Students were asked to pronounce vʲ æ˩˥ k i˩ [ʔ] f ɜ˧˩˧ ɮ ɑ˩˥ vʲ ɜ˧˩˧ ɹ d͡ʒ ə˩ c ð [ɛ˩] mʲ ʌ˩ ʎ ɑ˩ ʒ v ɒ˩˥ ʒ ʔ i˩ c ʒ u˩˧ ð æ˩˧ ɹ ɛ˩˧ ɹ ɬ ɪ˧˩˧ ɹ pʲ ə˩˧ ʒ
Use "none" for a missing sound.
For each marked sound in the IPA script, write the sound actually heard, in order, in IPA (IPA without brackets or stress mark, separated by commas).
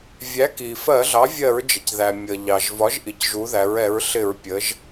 none, æ˩